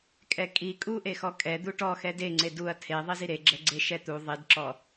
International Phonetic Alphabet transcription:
kʼɛkʼi kʼuʔexɔ kʼɛ d̪uʈɔxɛ deŋ͡ǀe duɐ̯ tʰeðˤiz iɾeɡ͡ǁɛ ɡ͡ǀeʃɛt̪u ðˤidǁɔ

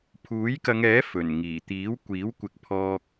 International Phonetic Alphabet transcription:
pʰuː˨˥jkɐ˨˧ŋɛː˨˥ fɵ˨˩n ŋiː˨˩t̪iː˨˥wkʷiː˨˥wkʷɪ˨k̚ pʰɔː˨k̚

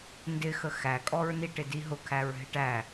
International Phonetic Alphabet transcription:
ndɪxə xækʼɔɹniʈɪ diɦʊkʰæɹ ɦɪʈæ

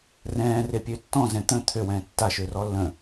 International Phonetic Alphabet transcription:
rɛ̃ːrepʲø tːɔ̃zɛ̃ t̪ə̃ t̪ʰøwɛ̃ː tːaʃørɔ lːə̃

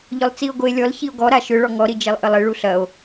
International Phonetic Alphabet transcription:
ʎʏlˠt͡sio̯ɡoe̯lʲɔl çio̯ɡɔ ɾaʃʏ ɭɔŋɔɾi d͡ʒelˠʔəlˠɪ ɭuɬɐo̯

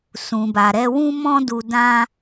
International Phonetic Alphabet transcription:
sũ˨ba˨ɾɛ˧wũ˦ mɔ̃˦du˧dã˦

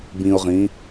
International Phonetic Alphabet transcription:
bĩʊ̯ʁĩ

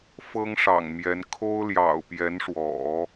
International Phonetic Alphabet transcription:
fɤ˥ŋʂɑ̰˨˩ŋmjɛ˧˥n kʰo˥ʊ̯ljɑ̰˨˩ʊ̯pjɛ˧˥nʂwɔ̰˨˩˦

